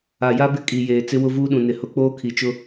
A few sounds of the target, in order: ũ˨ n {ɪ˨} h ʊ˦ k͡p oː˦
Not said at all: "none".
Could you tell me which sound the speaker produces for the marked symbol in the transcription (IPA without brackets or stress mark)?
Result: ɪ˨